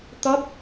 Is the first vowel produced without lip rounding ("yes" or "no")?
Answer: no